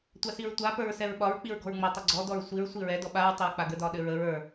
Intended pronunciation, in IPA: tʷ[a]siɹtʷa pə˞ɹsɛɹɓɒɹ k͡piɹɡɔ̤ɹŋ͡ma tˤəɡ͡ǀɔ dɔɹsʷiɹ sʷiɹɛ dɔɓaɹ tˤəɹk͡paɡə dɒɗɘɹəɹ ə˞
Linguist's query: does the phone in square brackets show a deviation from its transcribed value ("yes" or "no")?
no